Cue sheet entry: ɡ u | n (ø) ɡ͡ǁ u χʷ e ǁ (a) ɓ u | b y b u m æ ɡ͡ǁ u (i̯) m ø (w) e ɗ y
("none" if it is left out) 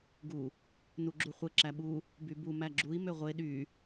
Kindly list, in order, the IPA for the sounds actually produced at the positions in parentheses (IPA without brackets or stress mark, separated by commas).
u, æ, i̯, ʁʷ